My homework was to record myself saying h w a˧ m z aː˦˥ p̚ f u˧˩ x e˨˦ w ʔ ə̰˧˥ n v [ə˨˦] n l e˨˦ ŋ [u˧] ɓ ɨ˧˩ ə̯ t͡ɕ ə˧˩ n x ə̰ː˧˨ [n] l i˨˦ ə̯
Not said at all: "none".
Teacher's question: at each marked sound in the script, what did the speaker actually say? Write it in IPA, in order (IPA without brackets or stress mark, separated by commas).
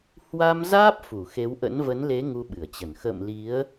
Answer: ə˨˦, u˧, m